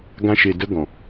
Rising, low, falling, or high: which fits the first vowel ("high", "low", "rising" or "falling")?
high